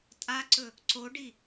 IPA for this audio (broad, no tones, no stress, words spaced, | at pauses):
tʼaǀɵ | ǀoɖi